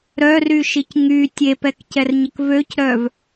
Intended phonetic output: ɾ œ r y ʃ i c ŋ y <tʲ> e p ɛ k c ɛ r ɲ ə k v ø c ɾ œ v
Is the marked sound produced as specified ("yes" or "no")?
yes